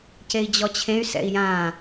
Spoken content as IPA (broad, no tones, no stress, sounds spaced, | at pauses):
c e i̯ d͡ʑ ɔ t͡ɕʰ ẽ y̯ s ɛ̰ i̯ j ã